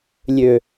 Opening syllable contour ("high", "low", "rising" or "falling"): low